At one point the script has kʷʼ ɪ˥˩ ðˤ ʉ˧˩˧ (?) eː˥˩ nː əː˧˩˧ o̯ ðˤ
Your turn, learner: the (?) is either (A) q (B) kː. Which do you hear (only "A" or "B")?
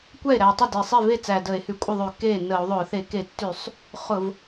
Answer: B